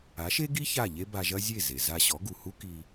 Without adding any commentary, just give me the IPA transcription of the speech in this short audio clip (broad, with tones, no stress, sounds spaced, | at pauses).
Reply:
a˩˥ ʃ e˥ ɡ i˥ ç a˥˩ ʎ e˥ b a˧ ʒ ɐ˥ zʲ e˥˩ z e˩ z a˧ ɕ ɔ˩˥ ɡ u˩ h u˥ k i˧